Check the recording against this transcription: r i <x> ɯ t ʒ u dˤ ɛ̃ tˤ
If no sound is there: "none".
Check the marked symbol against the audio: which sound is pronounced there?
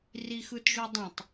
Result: x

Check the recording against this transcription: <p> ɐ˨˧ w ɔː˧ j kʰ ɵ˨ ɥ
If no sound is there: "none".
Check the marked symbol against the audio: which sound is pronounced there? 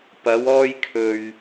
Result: p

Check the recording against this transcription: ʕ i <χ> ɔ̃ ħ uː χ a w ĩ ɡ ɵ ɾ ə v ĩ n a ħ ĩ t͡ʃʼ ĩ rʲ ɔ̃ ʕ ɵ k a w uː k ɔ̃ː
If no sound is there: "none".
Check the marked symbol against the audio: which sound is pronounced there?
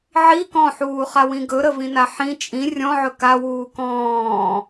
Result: k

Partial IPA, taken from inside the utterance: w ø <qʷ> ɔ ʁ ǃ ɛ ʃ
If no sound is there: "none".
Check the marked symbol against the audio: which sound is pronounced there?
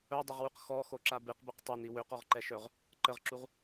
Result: q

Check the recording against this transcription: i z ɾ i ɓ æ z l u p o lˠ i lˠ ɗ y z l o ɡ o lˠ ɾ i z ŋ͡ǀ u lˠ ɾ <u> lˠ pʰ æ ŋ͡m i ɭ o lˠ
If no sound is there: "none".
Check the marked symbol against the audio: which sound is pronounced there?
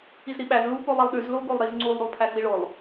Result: u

